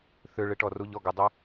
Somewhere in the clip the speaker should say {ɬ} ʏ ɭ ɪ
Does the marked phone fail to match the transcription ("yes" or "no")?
yes